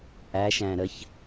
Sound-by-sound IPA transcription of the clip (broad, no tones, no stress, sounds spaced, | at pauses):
ʔ æ ʃ æ̃ ɾ ə ç